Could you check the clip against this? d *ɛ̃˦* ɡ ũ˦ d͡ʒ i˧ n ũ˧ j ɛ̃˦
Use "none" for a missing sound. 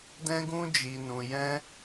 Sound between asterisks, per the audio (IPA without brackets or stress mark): ɛ̃˦